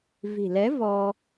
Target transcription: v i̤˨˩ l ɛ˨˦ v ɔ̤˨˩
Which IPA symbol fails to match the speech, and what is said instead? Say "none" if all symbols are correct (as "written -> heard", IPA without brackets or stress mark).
ɔ̤˨˩ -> ɔ˧